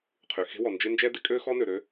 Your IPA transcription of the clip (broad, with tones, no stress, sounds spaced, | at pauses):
qʰ y˩ x e̤˥ w ɔ˩ n d͡ʒ ɪ˥ n d͡ʒ ɛ˥ d ɪ˥ kʼ ø˥ x ɔ˥ n ø˩ ɾ ø˥